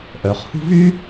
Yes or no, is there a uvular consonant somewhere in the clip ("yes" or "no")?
yes